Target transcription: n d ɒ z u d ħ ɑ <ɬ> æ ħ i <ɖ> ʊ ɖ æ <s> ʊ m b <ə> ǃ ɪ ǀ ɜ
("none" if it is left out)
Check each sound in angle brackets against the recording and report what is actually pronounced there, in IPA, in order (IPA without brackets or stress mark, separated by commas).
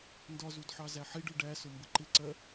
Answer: z, ɖ, s, ə